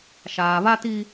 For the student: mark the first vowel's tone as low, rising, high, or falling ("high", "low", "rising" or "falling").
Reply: low